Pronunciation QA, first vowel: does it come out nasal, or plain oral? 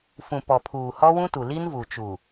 nasal